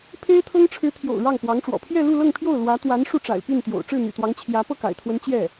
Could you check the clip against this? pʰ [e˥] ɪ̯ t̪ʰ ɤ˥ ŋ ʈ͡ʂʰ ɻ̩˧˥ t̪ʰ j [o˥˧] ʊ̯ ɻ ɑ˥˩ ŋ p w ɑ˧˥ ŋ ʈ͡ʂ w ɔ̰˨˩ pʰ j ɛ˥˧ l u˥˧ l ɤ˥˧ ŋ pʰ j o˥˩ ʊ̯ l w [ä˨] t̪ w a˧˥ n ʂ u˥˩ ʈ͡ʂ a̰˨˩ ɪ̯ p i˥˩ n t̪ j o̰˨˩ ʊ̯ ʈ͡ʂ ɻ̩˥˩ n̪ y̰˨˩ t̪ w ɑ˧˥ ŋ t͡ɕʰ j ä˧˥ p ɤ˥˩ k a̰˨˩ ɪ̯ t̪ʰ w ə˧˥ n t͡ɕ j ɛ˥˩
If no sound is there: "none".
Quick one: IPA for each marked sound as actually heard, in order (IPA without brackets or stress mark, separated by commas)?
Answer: e˥, o̰˨˩, ä˧˥